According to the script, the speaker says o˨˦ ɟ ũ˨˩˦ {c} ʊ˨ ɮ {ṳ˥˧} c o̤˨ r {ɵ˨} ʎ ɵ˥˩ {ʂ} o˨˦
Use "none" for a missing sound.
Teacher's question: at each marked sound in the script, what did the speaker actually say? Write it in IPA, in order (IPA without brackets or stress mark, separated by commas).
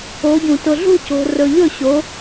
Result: t, ṳ˥˧, ɵ˨, ɕ